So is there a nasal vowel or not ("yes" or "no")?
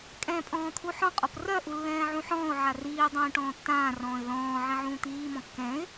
yes